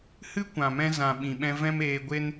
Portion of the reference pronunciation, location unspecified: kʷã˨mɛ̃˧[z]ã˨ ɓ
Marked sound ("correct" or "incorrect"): correct